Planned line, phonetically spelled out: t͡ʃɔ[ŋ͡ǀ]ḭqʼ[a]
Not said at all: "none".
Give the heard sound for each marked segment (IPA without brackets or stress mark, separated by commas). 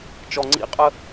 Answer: ŋ͡ǀ, ə